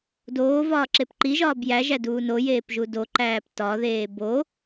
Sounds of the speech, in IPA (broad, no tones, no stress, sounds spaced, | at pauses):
d oː v ɒː ǁ e p ǃ i ʒ ɒː b j æ ʒ æ d uː n o j eː p ʒ u d o ǃ æː p t ɒ ð eː b o